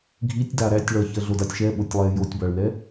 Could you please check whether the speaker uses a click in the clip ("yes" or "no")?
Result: no